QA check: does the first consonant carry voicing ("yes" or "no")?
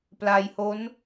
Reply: no